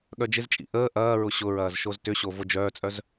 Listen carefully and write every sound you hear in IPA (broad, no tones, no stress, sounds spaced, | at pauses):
ɠ œ d͡ʒ ɪ z t͡ʃʼ ḭ ʔ əː ʔ ɐː ɹ ʊ ɕ ʊ ɹ ɐː z ʃ o z t ʏ ɕ o v o d͡ʒ œː t͡sʼ œ z